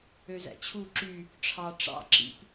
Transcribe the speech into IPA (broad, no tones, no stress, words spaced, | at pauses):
øzæ̰t͡ɕʰu ǁy | ʈ͡ʂʰɑ ʈ͡ʂɑ̰ǁḭp